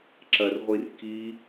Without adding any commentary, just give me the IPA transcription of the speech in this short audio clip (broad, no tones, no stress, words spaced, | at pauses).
ǁɐrʁʷir ki